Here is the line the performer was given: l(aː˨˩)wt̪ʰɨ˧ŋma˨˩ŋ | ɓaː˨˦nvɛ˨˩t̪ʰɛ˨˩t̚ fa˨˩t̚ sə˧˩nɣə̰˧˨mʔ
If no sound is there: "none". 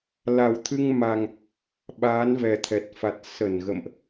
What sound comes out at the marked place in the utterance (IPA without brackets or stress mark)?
a˨˩